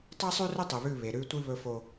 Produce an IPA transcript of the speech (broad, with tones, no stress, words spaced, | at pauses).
tˤe˦sˤʉ˦rɵ˦ tˤɨ˨βʉ˦˨ βe˨ ɾʉ˦tʷɨ˦ βɵ˦fo˦